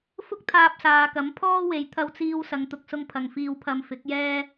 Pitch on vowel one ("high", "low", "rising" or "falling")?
high